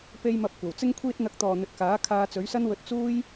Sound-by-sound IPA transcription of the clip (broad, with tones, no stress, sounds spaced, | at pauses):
p e˧ j m ɐ˨ p̚ kʷ ɐ˨˩ w t͡s ɪ˥ ŋ kʷʰ iː˥ t̚ n̪ ɐ˧ k̚ t̪ ɔː˨ n̪ ɵ˨ t̚ k aː˨˥ kʰ aː˧ t͡s ɵ˨˥ ɥ s ɐ˥ n w ɵ˧ t̚ t͡s uː˥ j